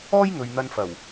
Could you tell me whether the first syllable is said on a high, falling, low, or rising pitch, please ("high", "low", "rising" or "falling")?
high